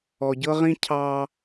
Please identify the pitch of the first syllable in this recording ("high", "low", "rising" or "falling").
low